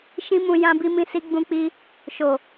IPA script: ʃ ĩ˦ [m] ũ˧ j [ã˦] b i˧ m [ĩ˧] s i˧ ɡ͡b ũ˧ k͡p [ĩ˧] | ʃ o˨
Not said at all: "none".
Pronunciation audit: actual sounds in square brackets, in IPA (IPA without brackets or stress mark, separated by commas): m, ã˧, ĩ˧, i˧